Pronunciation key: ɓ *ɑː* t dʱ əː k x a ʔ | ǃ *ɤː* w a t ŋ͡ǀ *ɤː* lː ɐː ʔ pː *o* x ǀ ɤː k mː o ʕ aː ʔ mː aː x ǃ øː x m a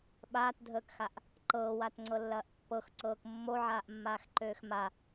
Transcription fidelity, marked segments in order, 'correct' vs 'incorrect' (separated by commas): incorrect, correct, incorrect, incorrect